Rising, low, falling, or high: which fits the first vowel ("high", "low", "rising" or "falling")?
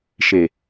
low